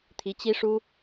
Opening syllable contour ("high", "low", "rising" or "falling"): rising